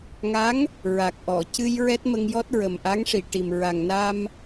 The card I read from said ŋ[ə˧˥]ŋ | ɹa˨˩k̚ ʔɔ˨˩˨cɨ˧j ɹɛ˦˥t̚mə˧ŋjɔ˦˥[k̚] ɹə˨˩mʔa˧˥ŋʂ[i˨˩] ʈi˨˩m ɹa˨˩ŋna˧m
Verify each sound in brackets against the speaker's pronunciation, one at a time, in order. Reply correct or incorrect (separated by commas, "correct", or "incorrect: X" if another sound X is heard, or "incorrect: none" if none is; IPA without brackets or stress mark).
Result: incorrect: a˧˥, incorrect: t̚, correct